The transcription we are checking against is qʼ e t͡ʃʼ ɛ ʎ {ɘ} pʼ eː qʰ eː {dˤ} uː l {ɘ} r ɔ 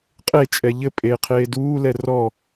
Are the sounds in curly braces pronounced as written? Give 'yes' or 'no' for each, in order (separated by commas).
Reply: yes, no, no